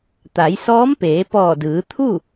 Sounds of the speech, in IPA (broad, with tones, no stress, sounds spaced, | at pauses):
t̪ a˩˧ j s ɔː˧˥ m p eː˩˧ p ɔː˧˩ d ɯː˩˧ t̪ʰ u˥˨